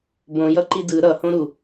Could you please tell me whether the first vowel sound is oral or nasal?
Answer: nasal